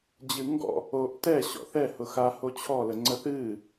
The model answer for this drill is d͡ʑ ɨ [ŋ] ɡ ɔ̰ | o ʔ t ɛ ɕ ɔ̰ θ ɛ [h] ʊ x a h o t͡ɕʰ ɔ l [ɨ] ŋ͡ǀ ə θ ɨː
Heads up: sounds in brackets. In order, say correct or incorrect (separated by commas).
correct, correct, incorrect